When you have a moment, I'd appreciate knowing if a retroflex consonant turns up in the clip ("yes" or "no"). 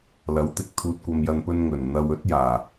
no